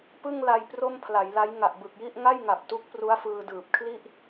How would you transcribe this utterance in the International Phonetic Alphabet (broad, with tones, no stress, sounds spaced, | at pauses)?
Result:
p ɯ˥˩ ŋ l a˧ j p r o˥˩ m pʰ l a˩˦ j l a˦˥ j ŋ a˨˩ ʔ b ɯ˨˩ k̚ j i˥˩ ʔ ŋ a˥˩ j ŋ a˨˩ p̚ t u˦˥ k̚ p r u˦˥ a̯ f ɯː˧ d ɯː˨˩ p̚ kʰ l i˥˩ ʔ